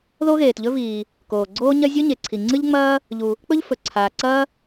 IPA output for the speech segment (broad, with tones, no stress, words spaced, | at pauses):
ðo˥ɣeː˩tʎɵ˥viː˩ | koː˩ɡ͡ǀoː˥ɲɐ˥ zʲo˥ɲe˩ǀʰi˩ ŋ͡ǀɨ˥ʎŋ͡mɐː˥ | ʎu˩ | k͡pɵ˥ʎfɵ˩ǀʰaː˩ ǀɐː˥